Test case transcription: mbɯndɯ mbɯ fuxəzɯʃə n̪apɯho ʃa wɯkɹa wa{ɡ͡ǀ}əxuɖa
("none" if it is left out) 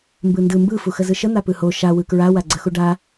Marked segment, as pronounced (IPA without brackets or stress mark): ɡ͡ǀ